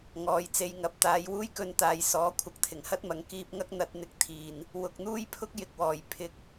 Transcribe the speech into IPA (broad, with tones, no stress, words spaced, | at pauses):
ŋɔː˨jt͡se˧jŋɐ˨p̚ t̪aː˨˧j wuː˥jkɵ˧nt̪aː˨jsɔː˨˥ kʷʰɐ˨k̚t̪ʰɪ˨˩ŋhɐ˥t̚mɐ˨ŋ kiː˧p̚ŋɐ˥k̚ n̪ɐ˧t̚n̪ɪ˨k̚t̪ʰiː˨˩n | wʊ˨k̚n̪uː˥jpʰʊ˥k̚ jɪ˨k̚wɔː˨˩j pʰɪ˨k̚